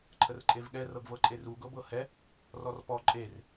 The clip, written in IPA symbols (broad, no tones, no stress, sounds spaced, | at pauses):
ǃʰ ə r ǃʼ e v ɠ ɛ r ɤ ɡ v ɤ ǃʼ e r u ɡ ɤ b ɤ h ɛ | r ɔ r p ɔ ǃʼ e r